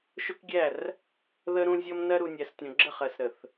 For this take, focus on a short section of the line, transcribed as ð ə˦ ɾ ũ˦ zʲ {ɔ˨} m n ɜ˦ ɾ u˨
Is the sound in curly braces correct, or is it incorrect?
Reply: incorrect